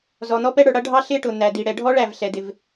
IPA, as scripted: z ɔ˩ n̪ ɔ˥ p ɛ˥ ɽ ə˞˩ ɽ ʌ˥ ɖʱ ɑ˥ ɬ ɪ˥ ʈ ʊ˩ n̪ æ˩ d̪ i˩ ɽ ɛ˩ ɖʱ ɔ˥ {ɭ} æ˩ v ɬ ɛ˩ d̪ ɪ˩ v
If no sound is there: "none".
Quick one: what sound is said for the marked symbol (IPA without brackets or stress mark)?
ɭ